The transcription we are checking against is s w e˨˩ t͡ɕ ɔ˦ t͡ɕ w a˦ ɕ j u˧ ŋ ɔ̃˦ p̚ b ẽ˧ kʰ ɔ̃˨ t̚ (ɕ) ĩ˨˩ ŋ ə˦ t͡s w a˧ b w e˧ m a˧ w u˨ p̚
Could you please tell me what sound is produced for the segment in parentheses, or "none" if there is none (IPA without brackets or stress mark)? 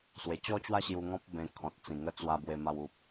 t͡s